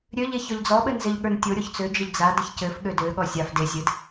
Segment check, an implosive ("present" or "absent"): present